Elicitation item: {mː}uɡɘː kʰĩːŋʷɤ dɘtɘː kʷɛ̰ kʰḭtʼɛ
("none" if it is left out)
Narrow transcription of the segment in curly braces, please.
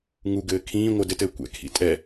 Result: ŋ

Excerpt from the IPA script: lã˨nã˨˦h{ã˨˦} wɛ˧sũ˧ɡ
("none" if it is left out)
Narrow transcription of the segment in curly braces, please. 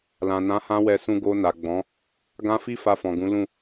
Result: ã˧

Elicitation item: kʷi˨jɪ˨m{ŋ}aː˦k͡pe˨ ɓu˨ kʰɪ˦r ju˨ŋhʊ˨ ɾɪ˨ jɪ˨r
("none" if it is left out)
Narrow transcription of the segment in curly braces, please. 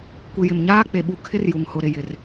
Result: ɲ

